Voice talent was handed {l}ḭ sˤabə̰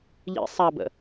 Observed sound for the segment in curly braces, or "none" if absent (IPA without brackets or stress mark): ʎ